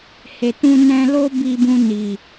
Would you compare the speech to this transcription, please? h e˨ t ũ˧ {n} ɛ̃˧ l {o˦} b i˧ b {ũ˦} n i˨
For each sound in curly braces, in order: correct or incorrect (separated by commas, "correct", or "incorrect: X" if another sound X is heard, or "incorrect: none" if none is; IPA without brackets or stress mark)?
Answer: correct, correct, incorrect: ũ˧